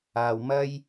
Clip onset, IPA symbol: aː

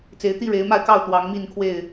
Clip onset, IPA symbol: t͡s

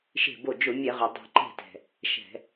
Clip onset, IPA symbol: ʃ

